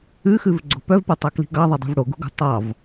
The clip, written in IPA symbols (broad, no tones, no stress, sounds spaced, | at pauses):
ʉ x ʉ v ɡ͡ǀ o̤ p œ v p u tˤ ɑ k l i̤ ɡ ɑ ðˤ ɑ dˤ ṳ v ɽ o ɡ ṳ ɡ o̤ tˤ ɑ v